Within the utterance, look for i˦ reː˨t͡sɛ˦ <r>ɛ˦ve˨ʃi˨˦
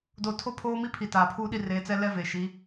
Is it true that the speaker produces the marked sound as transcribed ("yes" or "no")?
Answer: no